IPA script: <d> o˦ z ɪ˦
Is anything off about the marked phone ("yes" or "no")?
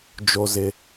yes